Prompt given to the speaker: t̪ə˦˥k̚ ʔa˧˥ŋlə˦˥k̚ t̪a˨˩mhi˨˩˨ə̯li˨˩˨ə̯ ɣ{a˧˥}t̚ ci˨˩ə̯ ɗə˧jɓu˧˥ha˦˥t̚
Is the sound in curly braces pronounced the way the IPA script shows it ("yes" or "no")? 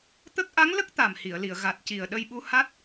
no